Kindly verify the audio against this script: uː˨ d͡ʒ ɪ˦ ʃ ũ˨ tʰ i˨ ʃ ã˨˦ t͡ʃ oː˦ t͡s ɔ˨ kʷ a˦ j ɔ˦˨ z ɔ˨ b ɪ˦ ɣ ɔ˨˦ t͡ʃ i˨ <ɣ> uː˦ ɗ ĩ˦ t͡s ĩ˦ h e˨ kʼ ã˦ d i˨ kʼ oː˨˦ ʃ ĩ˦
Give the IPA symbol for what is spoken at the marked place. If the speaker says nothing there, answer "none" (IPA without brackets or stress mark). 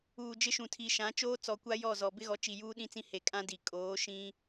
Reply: j